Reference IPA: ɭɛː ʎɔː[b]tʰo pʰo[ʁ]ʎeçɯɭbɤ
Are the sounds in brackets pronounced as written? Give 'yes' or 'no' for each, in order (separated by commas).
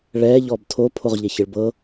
yes, yes